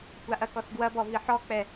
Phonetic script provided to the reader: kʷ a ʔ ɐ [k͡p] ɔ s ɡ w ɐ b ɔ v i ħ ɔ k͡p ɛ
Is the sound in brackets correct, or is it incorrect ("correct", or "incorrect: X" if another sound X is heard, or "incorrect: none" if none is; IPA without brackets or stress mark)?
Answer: incorrect: k